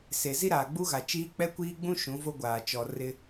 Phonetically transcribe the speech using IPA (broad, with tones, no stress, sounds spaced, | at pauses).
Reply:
s e˨ z i˦ ɾ aː˨ ɡ͡b u˦ ɣ a˨ t͡ʃ iː˦ k͡p ɛ˦ kʷ iː˦ ɡ͡b ũ˦ ʃ ũ˨˦ v o˦ ɡʷ aː˨ t͡ʃ ɔ˨ r ɪ˦